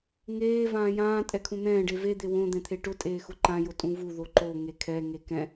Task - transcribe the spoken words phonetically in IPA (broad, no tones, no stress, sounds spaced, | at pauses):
ŋ eː v ãː j ãː tʼ ɛ kʰ ũ n̪ ɛ̃ː ɖ e v e d̪ e w õ d̪ ɛ̃ t̪ʰ e ʈ ʊ tʼ eː x ʊ ǃ ã j ʊ tʼ ũ v u ð o ǃ o ŋ e kʰ ɛ ŋ e k ɛ̃